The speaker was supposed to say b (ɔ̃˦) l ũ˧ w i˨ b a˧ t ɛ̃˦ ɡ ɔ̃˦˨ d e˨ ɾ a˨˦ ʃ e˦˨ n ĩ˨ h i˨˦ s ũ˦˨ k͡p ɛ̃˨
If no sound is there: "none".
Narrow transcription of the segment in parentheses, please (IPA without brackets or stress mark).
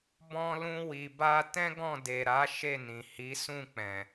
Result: ɔ̃˧